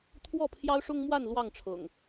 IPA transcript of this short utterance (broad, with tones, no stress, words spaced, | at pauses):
t̪ʰwɔ˥˨pʰjɑ˦ʊ̯ʂʊ˦ŋmwa˥˨n lwɑ˥˨ŋʈ͡ʂʰɤ̰˨˩ŋ